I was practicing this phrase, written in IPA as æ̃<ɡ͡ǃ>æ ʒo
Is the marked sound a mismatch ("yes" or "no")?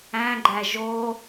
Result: no